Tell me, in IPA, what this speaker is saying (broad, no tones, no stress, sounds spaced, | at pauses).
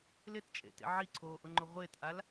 l ɪ t t͡ʃʼ ḛ t ḛ ʕ i ǀʰ oː ʔ ʊ ŋ͡ǃ ʊ ʁʷ ɪː t ʔ a l